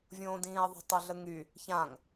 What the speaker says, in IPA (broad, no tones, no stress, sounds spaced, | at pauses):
vʲ õː d ĩː ɐ̯ ðˤ ə̤ tˤ ə ɮ ə ŋ y | ç ã ŋ